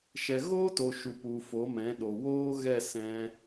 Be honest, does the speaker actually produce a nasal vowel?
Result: yes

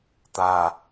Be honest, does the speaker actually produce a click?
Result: no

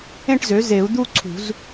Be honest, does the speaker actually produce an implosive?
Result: no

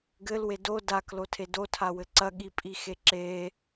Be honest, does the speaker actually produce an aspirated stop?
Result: yes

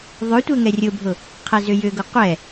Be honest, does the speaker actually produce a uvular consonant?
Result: yes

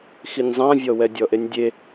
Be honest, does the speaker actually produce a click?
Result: no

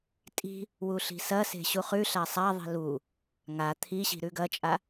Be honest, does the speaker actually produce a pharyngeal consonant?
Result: no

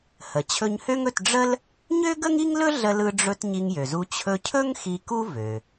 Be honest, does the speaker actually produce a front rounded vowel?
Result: yes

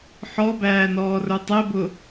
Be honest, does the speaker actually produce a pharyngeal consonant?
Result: yes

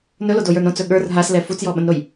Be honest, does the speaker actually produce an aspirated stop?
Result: no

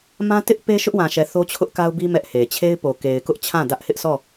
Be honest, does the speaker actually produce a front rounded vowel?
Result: no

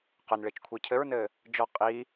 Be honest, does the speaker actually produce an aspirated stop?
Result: yes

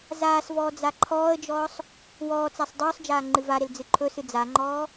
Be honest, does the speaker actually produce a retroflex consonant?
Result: no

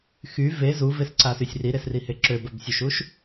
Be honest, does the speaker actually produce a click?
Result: yes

